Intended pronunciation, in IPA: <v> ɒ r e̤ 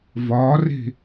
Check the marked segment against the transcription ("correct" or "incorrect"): correct